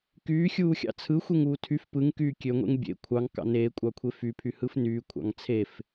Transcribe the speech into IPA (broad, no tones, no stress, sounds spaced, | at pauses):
k yː xʲ uː xʲ ɑ̰ t͡sʰ ɯ xʷ e ŋ uː tʰ y f p ɯ ŋ k y kʲ ø ŋʷ ḛ ŋ bʲ ḛ kʷʰ ɑ ŋ k ɑ̰ n eː kʷʼ ɑ kʷʰ e f y pʰ y h ɯ f n yː kʷʰ ɑ̰ ŋ t͡sʰ e f